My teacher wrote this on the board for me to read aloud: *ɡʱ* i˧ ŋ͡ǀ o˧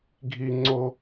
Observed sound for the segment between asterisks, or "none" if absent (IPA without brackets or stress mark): ɡʱ